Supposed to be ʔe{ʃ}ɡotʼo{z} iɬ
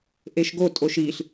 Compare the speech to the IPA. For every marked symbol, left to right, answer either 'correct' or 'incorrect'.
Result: correct, incorrect

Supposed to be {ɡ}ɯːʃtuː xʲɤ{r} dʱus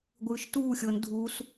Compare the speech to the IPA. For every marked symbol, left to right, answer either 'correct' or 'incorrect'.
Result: incorrect, incorrect

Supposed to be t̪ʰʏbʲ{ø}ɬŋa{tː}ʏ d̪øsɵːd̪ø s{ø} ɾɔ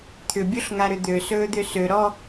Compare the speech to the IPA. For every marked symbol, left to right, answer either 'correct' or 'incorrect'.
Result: incorrect, incorrect, correct

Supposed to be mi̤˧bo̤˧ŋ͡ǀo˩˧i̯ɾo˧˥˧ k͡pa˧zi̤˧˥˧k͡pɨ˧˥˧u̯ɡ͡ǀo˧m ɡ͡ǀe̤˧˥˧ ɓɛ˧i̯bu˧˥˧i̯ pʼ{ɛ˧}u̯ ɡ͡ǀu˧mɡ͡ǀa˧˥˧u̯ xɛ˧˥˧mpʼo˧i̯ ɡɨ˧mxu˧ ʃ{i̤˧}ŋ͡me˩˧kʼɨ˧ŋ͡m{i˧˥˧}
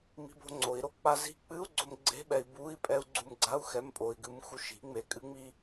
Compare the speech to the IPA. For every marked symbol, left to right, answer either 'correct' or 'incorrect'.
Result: correct, incorrect, incorrect

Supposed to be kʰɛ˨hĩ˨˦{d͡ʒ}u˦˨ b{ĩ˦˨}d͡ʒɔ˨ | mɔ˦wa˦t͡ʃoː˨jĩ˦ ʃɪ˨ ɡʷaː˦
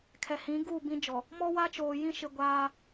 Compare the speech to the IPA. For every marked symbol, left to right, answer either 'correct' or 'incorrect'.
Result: incorrect, incorrect

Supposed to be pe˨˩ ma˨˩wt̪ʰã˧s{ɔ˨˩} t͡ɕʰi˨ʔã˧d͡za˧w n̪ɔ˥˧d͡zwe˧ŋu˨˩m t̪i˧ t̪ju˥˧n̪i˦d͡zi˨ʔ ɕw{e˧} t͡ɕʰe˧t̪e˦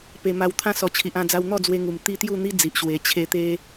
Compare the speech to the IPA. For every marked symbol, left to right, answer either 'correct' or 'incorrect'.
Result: correct, incorrect

